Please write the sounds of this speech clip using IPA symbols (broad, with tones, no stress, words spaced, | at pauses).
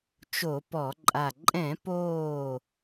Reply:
t͡ʃo˧˩˧pɔ˧˩˧ǃʼa˧˩ ǃʼɛ̃˧˩˧poː˧˩